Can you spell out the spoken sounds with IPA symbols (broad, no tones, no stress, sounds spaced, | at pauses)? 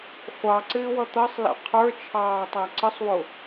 χʷ ɑ ǀ ɪː w ʌ t̪ ʌ sˤ l ɛ̰ qʰ ə˞ t͡ʃʰ ɑː tˤ æ ǀ ə sˤ w ʊ